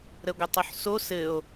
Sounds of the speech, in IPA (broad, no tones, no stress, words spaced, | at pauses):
ɾəɡʷətˤʊħso sɘo̯